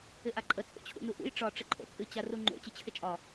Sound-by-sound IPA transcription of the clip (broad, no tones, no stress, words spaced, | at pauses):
ɪʔaǃʼə t͡sʼo̰t͡ɕʰṵnuʔṵj ʈ͡ʂɒ ʈ͡ʂɪǃʼo̰t͡sʼɨ t͡ɕaruŋ͡ǃo̰ t͡ɕɨt͡ɕʰɪt͡ʃʼɒ